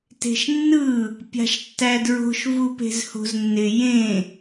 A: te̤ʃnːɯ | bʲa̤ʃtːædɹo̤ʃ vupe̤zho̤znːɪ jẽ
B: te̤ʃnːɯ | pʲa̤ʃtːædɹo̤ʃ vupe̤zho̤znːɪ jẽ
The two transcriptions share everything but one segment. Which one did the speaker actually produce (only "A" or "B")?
B